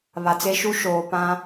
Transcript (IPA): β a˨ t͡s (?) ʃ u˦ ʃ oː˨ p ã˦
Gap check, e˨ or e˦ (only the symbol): e˦